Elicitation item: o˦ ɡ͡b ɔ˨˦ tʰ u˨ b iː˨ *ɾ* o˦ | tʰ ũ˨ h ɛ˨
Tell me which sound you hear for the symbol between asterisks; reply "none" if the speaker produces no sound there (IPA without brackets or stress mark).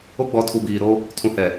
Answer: ɾ